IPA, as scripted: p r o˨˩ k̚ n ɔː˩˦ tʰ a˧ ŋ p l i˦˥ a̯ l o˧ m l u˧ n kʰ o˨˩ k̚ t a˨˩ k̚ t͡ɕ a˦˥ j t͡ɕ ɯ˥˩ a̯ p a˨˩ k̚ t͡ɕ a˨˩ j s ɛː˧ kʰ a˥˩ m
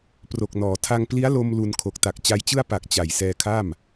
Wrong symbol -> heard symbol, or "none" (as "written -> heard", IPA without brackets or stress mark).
none